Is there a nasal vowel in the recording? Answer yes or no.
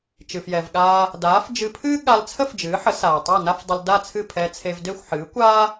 no